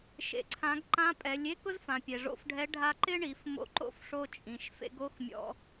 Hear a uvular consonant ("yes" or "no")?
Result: no